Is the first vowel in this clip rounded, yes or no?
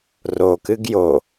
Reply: yes